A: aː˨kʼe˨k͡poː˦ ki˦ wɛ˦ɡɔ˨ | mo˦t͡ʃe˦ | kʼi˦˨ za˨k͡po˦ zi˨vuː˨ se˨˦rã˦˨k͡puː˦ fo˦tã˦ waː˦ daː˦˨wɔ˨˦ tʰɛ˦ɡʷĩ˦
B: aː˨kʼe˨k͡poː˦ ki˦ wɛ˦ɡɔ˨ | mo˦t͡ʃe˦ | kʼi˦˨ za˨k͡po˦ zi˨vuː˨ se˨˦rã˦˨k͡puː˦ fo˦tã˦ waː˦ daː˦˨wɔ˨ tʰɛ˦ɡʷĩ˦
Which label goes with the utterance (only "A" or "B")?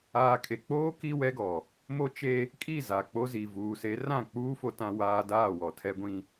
B